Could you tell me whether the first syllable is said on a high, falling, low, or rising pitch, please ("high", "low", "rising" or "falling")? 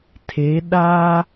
rising